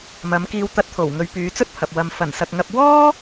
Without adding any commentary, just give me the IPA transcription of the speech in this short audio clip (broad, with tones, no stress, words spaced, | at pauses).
mɐ˨˧m kiː˧wt̪ɐ˧t̚t̪ʰo˨˩wŋɵ˨˧ɥ pyː˨˧t͡sɵ˥t̚pʰɐ˨p̚ wɐ˨m fɐ˨˩nsɐ˨k̚ŋɐ˧p̚ wɔː˥